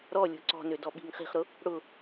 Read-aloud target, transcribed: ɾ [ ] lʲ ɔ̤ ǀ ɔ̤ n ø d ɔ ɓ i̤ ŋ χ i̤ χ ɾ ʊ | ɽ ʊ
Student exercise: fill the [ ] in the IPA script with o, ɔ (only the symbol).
ɔ